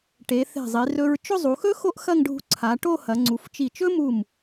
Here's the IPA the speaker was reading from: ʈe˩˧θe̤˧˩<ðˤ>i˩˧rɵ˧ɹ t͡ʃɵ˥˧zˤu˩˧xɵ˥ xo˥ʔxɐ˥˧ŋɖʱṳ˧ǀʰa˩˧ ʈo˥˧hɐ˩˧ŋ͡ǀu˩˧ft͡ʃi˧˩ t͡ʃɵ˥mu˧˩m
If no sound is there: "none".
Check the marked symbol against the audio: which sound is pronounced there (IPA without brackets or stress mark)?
zˤ